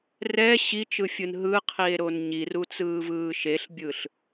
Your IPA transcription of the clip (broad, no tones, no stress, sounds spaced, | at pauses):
r ɛ ɕ i t͡ʃ ɯ fʲ ɯ n ɦ ɯ qʰ i e̯ ɾ o n ɲ i r u t͡s ɯː v ɯː ʃ e ɬ bʲ ɯ ɬ